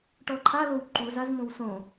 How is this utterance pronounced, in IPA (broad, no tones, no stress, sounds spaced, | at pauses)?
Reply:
ʈ ɔ ǃʰ a l o w ǃ u z a z m õ w s õ